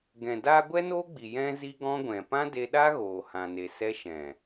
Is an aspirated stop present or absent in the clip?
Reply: absent